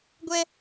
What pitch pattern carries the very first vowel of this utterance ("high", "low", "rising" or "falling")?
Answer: high